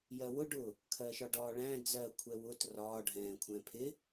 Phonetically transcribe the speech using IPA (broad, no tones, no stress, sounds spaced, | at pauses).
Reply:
j ɜ w ʊ ɖ ʊ | kʰ ɜ ʃ ɒ ɖ ɒː ɭ æ̃ d͡z ɜ kʷʰ ɛ w ʊ t r ɒː ɖʱ ɛ̃ː kʷʰ ɛ̃ pʰ ɪ